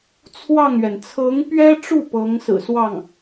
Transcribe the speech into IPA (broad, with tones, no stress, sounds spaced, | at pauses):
t͡sʰ w ɑ˥˩ ŋ ɥ ɛ˩ n t͡sʰ ɤ˧˥ ŋ p ɥ ɛ˥ ʈ͡ʂ u˥˩ p ɤ˧˥ ŋ s ɹ̩˨˩ s w ɑ˥˩ ŋ